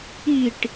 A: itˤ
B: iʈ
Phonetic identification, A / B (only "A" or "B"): B